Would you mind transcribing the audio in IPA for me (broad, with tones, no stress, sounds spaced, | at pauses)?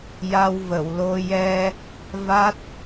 j a˧ w v ə˨˩˨ w l o˧ j ɛ˧ | v a˦˥ t̚